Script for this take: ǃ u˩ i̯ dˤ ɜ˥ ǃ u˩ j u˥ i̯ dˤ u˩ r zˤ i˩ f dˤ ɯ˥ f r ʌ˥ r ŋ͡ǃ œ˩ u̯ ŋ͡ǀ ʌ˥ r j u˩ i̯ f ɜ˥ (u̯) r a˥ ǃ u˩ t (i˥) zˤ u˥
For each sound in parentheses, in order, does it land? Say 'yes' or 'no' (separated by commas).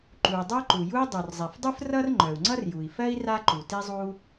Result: no, yes